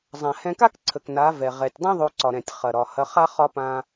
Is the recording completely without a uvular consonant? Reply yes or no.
no